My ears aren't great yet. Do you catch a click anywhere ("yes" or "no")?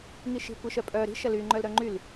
yes